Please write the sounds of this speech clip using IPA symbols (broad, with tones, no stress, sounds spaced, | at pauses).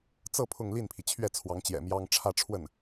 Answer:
t͡s ɤ˥˧ pʰ ʊ˥˧ ŋ l i˥˩ n pʰ i˩ t͡ɕʰ ɥ ɛ˥˩ t͡sʰ w ɑ˧˥ ŋ t͡ɕ j ɛ̰˨˩ m j ɑ˥ ŋ ʈ͡ʂʰ ä˥˧ ʈ͡ʂʰ w ə˥˩ n